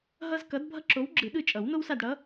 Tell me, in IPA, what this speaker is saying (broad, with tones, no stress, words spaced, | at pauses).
ɦʌ˦zkʌ˨˥d bʱʌ˦ǁo˨˥w ɡ͡ǁɯ˨˩˦ɗɯ˦˨t͡ʃʼʌ˨˩˦w no˦wsa˦˨dɽʌ˨˥